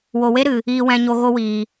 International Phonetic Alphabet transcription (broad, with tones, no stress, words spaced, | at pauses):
wo˨we˦ ɾɨ˨ | iː˨wɛ̃˨ɲo˨ ɣo˧wiː˨